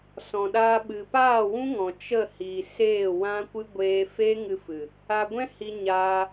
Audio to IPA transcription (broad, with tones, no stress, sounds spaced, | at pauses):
s ɔ̃˨ ɗ aː˧ ɓ ɨ˨ p aː˦˨ w ũ˦ ŋ ɔ̃˨ t͡ʃ ə˦˨ h iː˨ s eː˦˨ w ã˦ kʷ ɨ˦ ɡʷ eː˧ f eː˦ ŋ ɨ˧ f ɨ˨ | a˧ ɡʷ ɛ̃˦ h i˧ ɲ aː˧